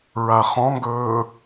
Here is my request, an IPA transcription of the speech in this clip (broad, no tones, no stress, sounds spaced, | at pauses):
ɹ a χ ɔ̃ ŋ ɡ ɵː